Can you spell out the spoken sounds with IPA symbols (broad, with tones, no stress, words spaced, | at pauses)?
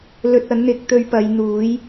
lɵ˧t̚ ɐ˨˥nn̪ɪ˨˥k̚ t̪ɵ˧ɥ pɐ˨˧jn̪uː˨˥j